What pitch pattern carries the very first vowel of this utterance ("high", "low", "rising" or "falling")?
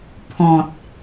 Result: low